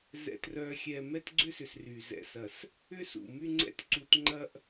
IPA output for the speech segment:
zɛ̰˨trœ˨xʲɛ˨ mɛ˦tɡ͡ǀʏ˦sʏ˨s ry˨ zɛ̰˨sɐ˨s | ʏ˦sṵ˨my˦ŋ͡ǀɛ̰˦t ǀu˨tŋ͡ǃɐ˦ʔ

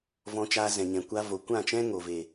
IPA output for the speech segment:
vɔ̃˧t͡ʃaː˧zɛ̃˨ɲɛ̃˨ kʷa˧vo˨kʷã˦˨t͡ʃɛ̃˦ ŋo˨ve˨

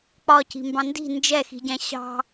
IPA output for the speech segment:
k͡pɒ ci̤mbɑ̃ndi̤ nd͡ʒɛxi̤ɟæ̃ ɕɑ̤

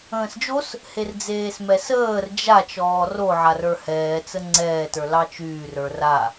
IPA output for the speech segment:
ə̃ːsd͡ʒos | herd͡zeːsmɛsəːr d͡ʒa t͡ʃɔːroʕa rə˞hɛːt͡sə ŋ͡ǀɛːtə˞ lɑt͡ʃyːr ə˞ra

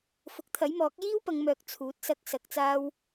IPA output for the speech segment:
fʊ˨˥k̚t̪ʰɐ˨˥jmɔː˨˥k̚ jiː˥wpɐ˨˧ŋmœː˨k̚ t͡sʰuː˨˥t̚sɐ˧k̚ sɐ˧k̚t͡saː˥w

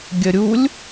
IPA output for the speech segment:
ɡʲəɾʲulʲ

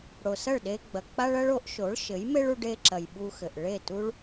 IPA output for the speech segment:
ɽo˩sɐ˥˩ɭɗe˧ɡ͡bɐ˩ k͡pa˥ɭɐ˥ɭ o˩˥ʔʃo˩˥ɭʃɘ˩˥jme˥ɭ u˧ɖe˧ ǁɐ˩j ɓu˧xɘ˩ʔ ɭe˥˩tu˥ɭ

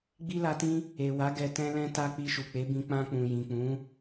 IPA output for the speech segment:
ɡ͡bi˦la˧tĩ˦ | e˨wa˨˦ ɡɛ˧tɛ̃˦lɛ̃˦ta˦ k͡pi˧ʃu˨k͡pe˨˦bĩ˧ k͡pã˧k͡pũ˨jĩ˨k͡pũ˨˦

